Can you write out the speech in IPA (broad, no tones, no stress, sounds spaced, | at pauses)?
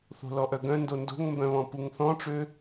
θ o̤ l ɔ ʔ œ ɡ œ̃ n d o n d o̤ ŋ m b œ̃ β ɔ̃ p u ŋ θ ɔ̃ ʈ͡ʂ ø